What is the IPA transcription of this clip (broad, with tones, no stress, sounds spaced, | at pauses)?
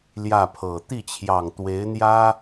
l j ä˥˩ pʰ ɤ˨˩ t̪ i˥˩ t͡ɕʰ j ɑ˨˩ ŋ t̪ w e˧˥ ɪ̯ n̪ j ä˥